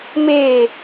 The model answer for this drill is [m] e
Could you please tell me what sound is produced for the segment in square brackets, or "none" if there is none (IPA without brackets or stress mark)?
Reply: m